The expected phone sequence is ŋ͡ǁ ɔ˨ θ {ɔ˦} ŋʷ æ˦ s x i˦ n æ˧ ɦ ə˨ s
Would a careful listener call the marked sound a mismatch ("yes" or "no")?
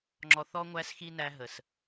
no